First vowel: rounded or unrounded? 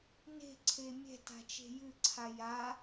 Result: unrounded